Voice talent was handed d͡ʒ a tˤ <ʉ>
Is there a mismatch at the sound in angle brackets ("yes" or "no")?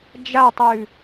no